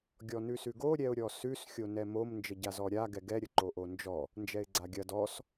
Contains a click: yes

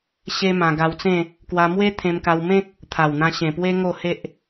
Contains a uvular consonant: no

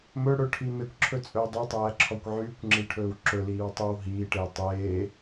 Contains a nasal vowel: no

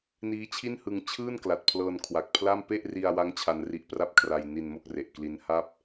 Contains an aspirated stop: yes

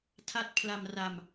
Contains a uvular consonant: no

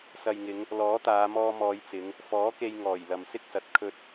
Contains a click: no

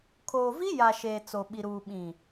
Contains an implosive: yes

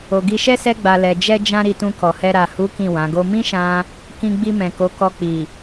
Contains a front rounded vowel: no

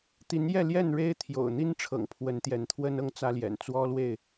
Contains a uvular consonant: no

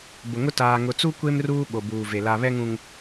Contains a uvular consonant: no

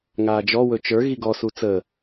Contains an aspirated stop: no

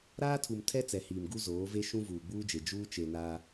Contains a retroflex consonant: no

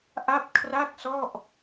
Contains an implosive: no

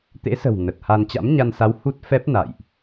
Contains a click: no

